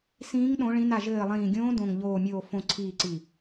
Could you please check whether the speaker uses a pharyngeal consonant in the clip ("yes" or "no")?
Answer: no